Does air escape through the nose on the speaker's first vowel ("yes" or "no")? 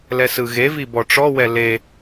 no